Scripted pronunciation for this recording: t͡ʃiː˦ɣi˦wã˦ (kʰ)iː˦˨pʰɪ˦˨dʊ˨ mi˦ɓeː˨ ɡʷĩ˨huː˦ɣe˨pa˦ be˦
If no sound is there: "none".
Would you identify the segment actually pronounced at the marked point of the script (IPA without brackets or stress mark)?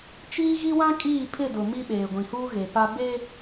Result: kʼ